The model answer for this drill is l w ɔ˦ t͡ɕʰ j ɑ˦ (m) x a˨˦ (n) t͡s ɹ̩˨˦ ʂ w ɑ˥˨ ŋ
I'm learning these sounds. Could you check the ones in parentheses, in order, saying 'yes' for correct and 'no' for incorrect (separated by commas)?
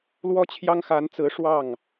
no, yes